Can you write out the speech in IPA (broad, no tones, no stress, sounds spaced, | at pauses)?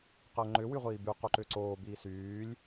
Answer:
q əː ŋ͡ǃ ʏ w y ʁʷ iː b y q o ǃ ʏː ǀ oː b iː s yː lʲ